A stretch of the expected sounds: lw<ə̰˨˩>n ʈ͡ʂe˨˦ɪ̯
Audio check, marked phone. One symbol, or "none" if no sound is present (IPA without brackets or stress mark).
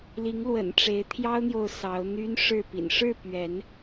ə̰˨˩